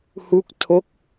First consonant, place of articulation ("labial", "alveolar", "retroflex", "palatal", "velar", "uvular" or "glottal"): glottal